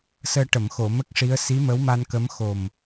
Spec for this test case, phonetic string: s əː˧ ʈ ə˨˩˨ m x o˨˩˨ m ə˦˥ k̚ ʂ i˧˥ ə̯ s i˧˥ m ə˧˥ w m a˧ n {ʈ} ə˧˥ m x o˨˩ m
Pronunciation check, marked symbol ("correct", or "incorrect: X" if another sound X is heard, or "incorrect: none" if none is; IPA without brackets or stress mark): incorrect: k